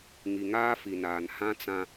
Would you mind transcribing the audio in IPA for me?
ŋ i˨ ŋ aː˦ f i˨ n aː˨ n h ã˦ t͡s ã˦

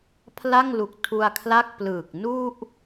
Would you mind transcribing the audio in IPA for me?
pʰ l a˥˩ ŋ l u˨˩ k̚ tʰ u˧ a̯ kʰ l a˥˩ k̚ p l ɯː˨˩ k̚ n u˥˩ ʔ

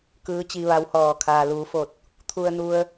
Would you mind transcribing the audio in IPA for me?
k ɯː˧˥ t͡ɕ i˧ ʋ a˧˥ w h ɔː˧˩ kʰ aː˩ l uː˩˧ f o˧˩ t̚ | t̪ʰ u˧ ə̯ n u˧ ə̯

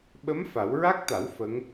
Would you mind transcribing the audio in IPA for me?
ɓ ə˧˥ m f a˨˩˦ w ɹ a˦˥ k̚ t̪ a˨˩˦ w f ə˧˥ ŋ

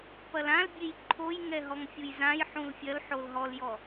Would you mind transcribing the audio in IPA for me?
p ɐ l ã l bʲ e j ǃʰ o j ŋ ɛ ɦ ɔ ŋ fʲ u j z ã j ħ ũ l fʲ ɐ l ħ o l ɦ ɔ l j ɔ

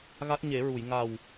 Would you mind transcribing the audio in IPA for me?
ɣ a˦˥ t̚ ɲ e˨˩˦ ɹ u˨˩˨ j ŋ a˨˩ w

